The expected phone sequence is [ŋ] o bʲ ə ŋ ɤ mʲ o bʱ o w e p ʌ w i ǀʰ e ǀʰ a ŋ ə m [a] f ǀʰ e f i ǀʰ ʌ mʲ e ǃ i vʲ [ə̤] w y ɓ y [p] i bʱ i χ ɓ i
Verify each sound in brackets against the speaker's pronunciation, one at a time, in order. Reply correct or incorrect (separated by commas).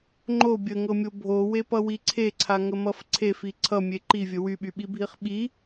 incorrect, incorrect, incorrect, incorrect